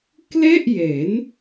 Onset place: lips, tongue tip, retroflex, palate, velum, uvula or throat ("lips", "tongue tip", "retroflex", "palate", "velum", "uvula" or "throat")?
velum